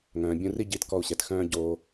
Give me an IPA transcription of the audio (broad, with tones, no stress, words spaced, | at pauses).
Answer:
ŋœ̃ː˩bʲũ˧ri˥ ɟi˧tkɔ˧u̯ɕɛ˩txœ̃ː˥ ɟoː˧